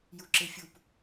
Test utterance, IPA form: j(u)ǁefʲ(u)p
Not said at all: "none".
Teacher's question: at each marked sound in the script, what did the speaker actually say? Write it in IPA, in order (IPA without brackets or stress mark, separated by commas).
u, u